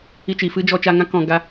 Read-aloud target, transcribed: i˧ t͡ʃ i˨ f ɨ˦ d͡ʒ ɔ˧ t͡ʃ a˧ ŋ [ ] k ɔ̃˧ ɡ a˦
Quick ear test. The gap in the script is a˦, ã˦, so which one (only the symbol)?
ã˦